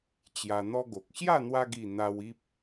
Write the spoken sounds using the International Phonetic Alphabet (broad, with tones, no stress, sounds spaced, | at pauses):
t͡ɕ j a˧ n̪ ɔ˦ ɡ o˨ k̚ ɕ j a˥˧ n̪ w a˧ ɡ i˨˩ n̪ a˧ w i˦ p̚